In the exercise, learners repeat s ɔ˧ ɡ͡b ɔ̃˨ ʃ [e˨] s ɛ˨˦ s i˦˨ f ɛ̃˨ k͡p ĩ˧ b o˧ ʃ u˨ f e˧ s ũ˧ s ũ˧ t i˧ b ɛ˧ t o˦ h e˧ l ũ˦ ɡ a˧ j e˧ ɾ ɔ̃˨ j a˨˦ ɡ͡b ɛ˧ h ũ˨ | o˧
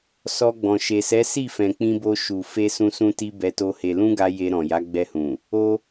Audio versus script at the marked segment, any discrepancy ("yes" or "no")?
no